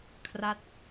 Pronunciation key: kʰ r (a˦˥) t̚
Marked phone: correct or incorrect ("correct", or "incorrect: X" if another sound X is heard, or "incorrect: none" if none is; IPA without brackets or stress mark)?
correct